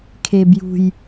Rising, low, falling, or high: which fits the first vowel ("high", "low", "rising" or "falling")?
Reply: low